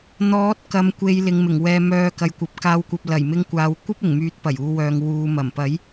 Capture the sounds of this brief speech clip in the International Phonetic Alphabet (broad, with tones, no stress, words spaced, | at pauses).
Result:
n̪ɔː˨˥t̚ kɐ˨mkʷe˨j lɪ˨ŋmɪ˨˩ŋwɛː˨ mœː˨ kɐ˨jkʷɐ˨˥p̚kaː˧wkʷɐ˧p̚ lɐ˨˩j mɪ˧ŋkʷaː˨w kʷɐ˥p̚ɪ˨˩ŋmyː˨˥t̚ pɐ˨˩juː˨wœː˨ŋ wuː˨ mɐ˨˩mpɐ˨˥j